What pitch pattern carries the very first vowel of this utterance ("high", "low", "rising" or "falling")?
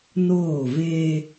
falling